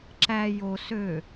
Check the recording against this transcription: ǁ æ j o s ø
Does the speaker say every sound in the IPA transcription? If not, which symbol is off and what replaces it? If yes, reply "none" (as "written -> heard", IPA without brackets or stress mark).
none